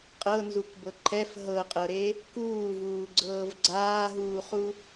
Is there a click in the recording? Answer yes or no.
yes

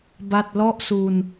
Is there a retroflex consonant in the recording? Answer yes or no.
no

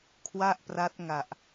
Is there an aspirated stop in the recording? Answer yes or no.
yes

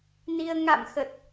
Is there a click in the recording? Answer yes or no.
no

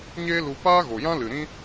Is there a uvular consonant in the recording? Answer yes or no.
no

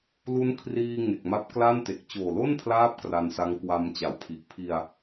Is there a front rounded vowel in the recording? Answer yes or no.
no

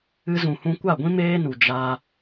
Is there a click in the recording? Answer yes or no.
no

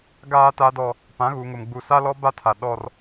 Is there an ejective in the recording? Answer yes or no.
no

